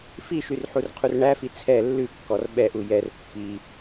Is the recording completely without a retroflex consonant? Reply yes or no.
no